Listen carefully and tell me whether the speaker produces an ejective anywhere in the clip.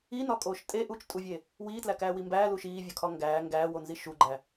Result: yes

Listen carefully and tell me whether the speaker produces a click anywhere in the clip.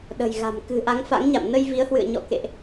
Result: no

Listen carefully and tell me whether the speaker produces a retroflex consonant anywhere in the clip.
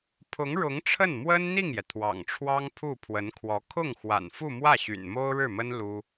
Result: yes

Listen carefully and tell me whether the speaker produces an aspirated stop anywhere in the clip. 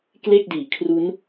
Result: yes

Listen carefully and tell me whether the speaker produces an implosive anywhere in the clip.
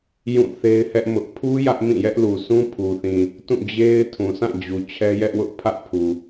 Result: no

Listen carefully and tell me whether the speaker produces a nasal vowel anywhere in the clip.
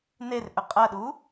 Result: no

